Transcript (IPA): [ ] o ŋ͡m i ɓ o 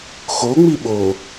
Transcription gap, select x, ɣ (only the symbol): x